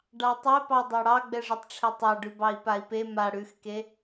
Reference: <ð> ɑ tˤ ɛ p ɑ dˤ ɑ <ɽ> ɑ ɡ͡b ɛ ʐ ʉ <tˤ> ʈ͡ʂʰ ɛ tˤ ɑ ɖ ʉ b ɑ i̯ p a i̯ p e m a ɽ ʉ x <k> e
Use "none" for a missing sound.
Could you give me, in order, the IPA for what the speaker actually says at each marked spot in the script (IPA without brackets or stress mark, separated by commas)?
ɖ, ɽ, tˤ, k